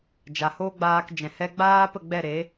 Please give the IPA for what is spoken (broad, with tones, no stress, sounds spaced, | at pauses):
d͡ʒ a˨ h oː˦ ɡ͡b aː˧ k d͡ʒ ɛ̃˨ h ɛ˧ ɡ͡b aː˦ p ə˦˨ ɡ͡b ɛ˦˨ ɾ e˨˦